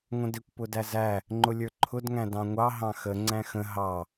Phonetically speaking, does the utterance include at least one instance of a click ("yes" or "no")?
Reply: yes